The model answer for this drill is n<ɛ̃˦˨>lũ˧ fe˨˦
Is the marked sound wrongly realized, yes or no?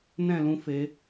no